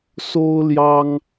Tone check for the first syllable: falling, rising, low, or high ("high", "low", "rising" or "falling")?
high